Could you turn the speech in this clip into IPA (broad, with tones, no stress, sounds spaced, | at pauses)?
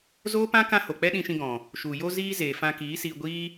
z oː˦ p ã˦ k ã˦ h o˨ k͡p ɛ˦ ɗ ĩ˧ ʃ ĩ˧ ɡ ɔ̃˨ | ʃ u˨ j o˦ z iː˦ z eː˨ f ã˧ k iː˨˦ s iː˧ ɡʷ iː˦